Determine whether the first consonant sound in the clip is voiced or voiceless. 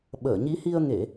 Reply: voiced